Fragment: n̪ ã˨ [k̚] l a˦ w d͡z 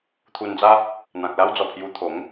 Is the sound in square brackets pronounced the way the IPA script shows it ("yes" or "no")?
yes